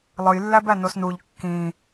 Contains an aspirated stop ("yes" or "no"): no